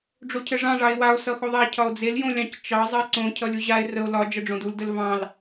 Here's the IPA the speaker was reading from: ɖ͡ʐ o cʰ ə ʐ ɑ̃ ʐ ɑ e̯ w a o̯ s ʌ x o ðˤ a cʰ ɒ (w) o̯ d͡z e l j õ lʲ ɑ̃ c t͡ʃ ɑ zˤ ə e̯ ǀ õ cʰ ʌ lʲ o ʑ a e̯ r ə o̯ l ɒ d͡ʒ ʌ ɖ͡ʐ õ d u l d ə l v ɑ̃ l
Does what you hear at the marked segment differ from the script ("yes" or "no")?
yes